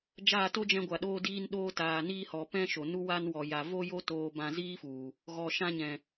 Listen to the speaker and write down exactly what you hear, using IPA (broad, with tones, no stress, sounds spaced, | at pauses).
d͡ʒ aː˦˨ t o˦ d͡ʒ ɛ̃˧ ɡʷ a˨ ɗ oː˧ d iː˧ n ɗ oː˧ t aː˨ n iː˧ h ɔ˨ p ɛ̃˦ ʃ o˨ n u˦ w a˧ n w ɔ˨ j a˨ v o˧ j o˧ t oː˨ b ã˨ z iː˦ f u˨ | ɣ ɔ˨ ʃ ã˧ ɲ ɛ̃˨